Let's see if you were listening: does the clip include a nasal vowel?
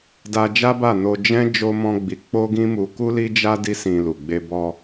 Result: yes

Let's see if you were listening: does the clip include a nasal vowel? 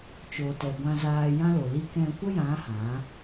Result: yes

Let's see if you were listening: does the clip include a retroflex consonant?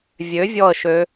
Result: no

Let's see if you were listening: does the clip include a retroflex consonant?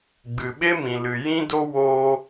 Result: no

